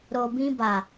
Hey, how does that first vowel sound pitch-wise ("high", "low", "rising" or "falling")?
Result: low